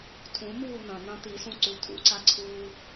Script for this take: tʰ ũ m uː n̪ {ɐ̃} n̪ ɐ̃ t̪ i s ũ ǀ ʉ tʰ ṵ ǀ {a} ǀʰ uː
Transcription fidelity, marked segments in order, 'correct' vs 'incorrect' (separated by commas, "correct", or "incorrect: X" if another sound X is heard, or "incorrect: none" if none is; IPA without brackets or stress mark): correct, correct